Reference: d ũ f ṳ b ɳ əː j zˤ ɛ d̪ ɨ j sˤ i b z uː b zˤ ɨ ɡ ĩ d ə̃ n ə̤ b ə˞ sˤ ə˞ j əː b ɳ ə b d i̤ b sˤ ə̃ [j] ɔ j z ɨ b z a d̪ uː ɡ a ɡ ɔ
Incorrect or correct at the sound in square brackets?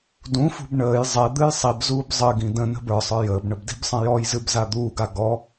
correct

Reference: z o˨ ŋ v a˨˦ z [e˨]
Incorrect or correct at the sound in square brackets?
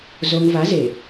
correct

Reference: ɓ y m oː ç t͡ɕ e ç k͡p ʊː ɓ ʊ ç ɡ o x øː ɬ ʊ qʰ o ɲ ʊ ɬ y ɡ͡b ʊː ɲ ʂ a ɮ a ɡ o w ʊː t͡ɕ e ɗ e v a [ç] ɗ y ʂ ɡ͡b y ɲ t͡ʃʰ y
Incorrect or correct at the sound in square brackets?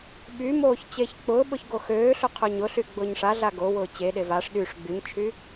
incorrect: ʂ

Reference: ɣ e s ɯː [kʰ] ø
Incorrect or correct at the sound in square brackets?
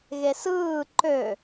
incorrect: ǃ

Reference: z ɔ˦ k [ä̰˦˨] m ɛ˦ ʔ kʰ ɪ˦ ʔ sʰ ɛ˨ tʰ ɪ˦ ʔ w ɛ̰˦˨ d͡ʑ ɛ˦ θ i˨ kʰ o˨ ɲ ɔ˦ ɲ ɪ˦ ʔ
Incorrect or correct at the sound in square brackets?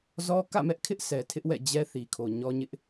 correct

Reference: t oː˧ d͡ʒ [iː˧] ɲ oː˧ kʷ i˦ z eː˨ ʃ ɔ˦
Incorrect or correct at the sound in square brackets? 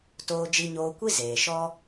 incorrect: i˧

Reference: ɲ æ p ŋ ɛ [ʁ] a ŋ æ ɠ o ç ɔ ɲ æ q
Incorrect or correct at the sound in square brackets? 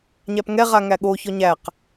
correct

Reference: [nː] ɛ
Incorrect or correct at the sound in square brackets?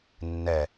correct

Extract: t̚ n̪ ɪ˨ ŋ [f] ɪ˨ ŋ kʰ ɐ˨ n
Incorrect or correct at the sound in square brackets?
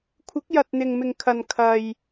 incorrect: m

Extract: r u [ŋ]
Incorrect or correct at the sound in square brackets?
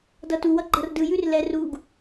incorrect: ɡ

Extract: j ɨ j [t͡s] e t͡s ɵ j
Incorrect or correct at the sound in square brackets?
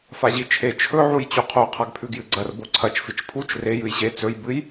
incorrect: ɕ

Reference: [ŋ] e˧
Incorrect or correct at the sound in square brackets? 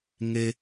correct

